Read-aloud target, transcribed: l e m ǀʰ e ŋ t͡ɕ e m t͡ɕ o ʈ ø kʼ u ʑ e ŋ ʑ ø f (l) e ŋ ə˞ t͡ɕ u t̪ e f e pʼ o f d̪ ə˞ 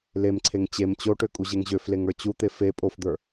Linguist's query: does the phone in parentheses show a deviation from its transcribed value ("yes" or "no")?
no